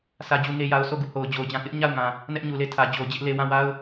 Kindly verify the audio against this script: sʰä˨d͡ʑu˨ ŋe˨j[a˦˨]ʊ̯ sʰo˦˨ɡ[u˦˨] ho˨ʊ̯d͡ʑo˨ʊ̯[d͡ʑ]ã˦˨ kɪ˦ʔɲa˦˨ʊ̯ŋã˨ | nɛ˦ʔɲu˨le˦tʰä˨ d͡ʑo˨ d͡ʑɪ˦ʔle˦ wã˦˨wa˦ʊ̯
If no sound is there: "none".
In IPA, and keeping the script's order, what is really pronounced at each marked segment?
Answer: a˨, u˦˨, d͡ʑ

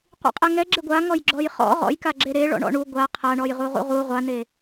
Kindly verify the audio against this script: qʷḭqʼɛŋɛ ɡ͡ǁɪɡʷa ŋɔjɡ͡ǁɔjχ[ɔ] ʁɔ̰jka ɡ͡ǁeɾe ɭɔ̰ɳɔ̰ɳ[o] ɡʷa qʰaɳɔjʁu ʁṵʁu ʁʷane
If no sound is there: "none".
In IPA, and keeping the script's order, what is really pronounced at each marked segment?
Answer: ɔ̰, u

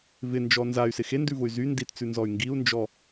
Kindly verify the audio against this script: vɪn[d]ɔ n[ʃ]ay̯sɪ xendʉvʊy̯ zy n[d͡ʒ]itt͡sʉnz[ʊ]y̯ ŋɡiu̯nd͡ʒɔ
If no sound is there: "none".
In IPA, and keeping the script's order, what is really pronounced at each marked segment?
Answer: d͡ʒ, z, d, ɔ

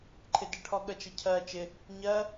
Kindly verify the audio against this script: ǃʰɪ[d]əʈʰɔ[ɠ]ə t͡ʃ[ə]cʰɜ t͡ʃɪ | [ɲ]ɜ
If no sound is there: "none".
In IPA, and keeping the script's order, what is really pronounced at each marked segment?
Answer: d, ɠ, ə, ɲ

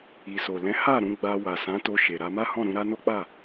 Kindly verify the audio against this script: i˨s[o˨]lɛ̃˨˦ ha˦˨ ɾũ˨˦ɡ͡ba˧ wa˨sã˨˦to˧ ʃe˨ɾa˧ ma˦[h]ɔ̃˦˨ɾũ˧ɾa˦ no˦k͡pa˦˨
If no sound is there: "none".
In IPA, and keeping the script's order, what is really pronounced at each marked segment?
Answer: o˨, h

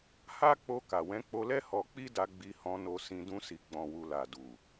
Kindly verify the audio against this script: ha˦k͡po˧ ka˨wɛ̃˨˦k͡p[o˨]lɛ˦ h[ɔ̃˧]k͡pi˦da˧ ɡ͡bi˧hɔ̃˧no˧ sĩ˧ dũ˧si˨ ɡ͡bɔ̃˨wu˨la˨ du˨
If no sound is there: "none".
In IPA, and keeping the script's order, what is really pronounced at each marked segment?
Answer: o˧, ɔ˧

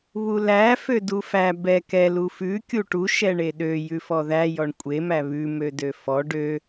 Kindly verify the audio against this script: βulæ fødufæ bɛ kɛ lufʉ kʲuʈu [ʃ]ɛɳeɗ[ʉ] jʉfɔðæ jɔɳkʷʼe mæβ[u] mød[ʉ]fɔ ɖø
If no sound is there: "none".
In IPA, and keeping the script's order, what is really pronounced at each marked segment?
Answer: ʃ, ø, ʉ, ø

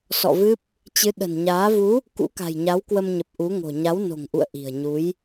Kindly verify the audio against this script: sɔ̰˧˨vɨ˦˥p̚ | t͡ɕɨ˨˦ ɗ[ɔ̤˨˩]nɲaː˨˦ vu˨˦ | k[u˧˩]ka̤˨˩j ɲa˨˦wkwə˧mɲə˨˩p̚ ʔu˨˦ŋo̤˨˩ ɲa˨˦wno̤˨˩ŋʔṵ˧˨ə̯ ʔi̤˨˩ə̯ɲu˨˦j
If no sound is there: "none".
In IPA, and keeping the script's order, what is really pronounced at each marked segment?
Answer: ə̤˨˩, ṵ˧˥

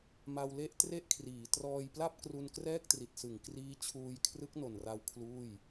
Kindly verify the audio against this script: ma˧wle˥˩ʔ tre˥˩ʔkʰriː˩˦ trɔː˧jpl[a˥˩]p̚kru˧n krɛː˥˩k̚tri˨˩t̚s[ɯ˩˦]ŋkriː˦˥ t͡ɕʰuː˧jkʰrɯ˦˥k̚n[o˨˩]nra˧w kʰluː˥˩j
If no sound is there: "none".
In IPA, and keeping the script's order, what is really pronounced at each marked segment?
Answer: a˥˩, ɯ˩˦, o˨˩

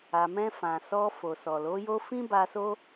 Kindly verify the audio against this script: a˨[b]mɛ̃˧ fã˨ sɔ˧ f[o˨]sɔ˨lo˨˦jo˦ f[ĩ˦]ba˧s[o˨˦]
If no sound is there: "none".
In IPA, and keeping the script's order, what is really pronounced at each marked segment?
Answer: none, o˨, ĩ˦, o˦

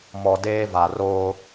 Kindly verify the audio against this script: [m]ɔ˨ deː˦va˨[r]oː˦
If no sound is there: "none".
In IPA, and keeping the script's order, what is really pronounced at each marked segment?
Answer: m, r

